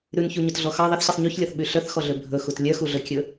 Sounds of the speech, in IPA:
ɾ ʉ n ç u ɲ ɵ t ɮ ɔ x ɑ ðˤ ɛ θ ɕ i sˤ ɲ y ç lʲ ɔ θ ɓ y ɬ œ θ x ɔ ɮ ø bʱ ɵ x u t lʲ œ x u ɮ ɵ kʲ ɵ

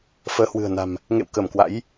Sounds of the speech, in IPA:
f əː˨˦ h w ɨ̤˨˩ ə̯ n a̤˨˩ m | ŋ ḛ˧˨ w k ə˧˩ m k w a̰˧˥ j

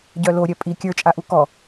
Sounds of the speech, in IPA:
ɟ œ l o ɾʲ œ pʼ i kʲ ə˞ t͡ʃʼ a ʔ u k ɔ

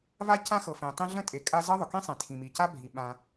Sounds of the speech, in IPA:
v a˥ c ã˥ x ɤ˩ f ẽ˩ tˤ ĩ˥ ɮ ə̃˥ tʼ e˩ kʼ a˥ z ɤ˥ ðˤ ʊ˩ k ĩ˥ sˤ ẽ˩ tʰ ĩ˩ m i˩ c a˥ bʱ i˩ ɓ ã˩

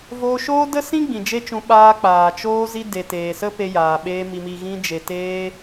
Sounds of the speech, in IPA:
v oː˧ ʃ oː˦ d ə˦ s ĩ˦ ɡ͡b ĩ˨ d͡ʒ e˦ t͡ʃ ũ˧ ɓ aː˧ k͡p aː˨ t͡ʃ oː˧ z i˧ d e˨ t eː˨ s ə˦ p e˧ j aː˨ ɓ eː˧ m i˨ m i˨ ɣ ĩ˧ d͡ʒ e˨ t eː˧

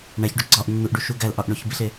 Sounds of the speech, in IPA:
ɳ æ ç ɖ o ɡ͡ǀ ɒ ʔ nː u ʔ ɖ u ʃ u ɡ æ l ʔ ɒ ʔ ɳ o ç b i ɬ e

